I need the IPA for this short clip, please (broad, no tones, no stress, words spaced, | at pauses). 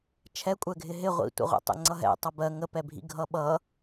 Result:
t͡ʃʰɛkʷʼɛɡʱɪ ɦɪ ʁʷḭtʷɛ̰ʁʷɛ̰ tˤɛ̰ŋ͡ǀʌɦɛ̰ tˤʌbɜ ŋəpɛbʱḭ ɡʱʌɓʌ